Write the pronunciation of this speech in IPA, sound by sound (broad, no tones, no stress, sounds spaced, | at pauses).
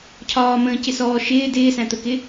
cʰ ɒː m ə̃ː c ɪ s ɔː ʃ ɪː d ɪː s æ̃ t̪ ə k ɪ